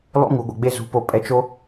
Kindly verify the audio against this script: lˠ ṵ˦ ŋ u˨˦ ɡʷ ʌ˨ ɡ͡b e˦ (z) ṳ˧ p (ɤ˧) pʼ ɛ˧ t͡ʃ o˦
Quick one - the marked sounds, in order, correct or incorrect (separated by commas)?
correct, incorrect